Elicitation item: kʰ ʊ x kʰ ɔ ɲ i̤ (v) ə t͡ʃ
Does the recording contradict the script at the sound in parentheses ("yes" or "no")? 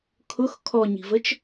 no